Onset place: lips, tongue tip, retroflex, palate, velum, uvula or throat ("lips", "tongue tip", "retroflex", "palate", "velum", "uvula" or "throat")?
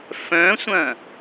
lips